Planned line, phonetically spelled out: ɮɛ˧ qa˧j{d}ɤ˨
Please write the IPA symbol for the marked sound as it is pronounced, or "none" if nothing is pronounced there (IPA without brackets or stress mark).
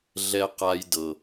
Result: d